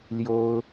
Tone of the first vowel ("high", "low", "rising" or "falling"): high